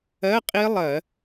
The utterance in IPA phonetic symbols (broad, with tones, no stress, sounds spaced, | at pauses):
ɜ˧˥˧ qʼ i˦˥ lˠ ɜ˧˩˧